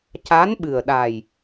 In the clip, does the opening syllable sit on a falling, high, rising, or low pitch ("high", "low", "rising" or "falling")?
rising